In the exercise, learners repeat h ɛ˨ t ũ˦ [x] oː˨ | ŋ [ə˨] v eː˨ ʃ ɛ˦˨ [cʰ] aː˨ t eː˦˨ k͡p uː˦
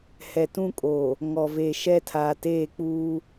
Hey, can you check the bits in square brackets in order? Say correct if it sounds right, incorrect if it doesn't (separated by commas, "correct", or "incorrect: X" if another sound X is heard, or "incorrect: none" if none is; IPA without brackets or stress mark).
incorrect: kʼ, incorrect: ɔ˨, incorrect: tʰ